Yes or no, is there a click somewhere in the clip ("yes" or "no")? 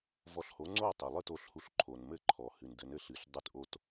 yes